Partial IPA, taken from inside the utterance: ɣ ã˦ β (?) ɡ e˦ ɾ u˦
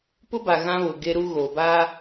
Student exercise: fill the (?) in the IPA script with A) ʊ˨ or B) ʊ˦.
A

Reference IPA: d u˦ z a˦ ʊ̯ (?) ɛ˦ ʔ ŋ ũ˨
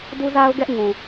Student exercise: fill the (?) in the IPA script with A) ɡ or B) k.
A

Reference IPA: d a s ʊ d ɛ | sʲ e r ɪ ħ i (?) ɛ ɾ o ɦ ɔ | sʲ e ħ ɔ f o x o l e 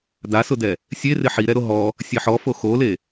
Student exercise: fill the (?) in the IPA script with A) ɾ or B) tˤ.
A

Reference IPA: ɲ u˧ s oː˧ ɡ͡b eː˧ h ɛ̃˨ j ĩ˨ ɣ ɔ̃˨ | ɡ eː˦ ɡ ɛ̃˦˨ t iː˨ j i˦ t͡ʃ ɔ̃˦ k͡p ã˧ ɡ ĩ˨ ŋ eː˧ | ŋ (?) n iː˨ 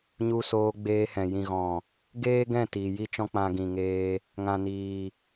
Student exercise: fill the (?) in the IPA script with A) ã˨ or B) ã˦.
A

